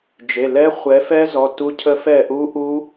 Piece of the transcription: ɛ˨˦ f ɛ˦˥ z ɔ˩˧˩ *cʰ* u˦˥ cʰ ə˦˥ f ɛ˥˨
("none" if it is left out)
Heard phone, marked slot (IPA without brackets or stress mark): t